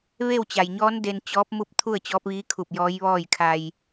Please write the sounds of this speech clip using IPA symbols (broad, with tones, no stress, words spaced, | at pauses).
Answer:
ʋe˥˨wt͡ɕa˩jɲɔː˧˥n de˧nt͡ɕɔː˧˥p̚mu˥˨p̚ t̪ʰu˥˨ə̯t͡ɕɔː˧˥p̚ʋiː˧˥kʰu˧˩p̚ jɔː˧˥jʋɔː˥˨jkʰa˧j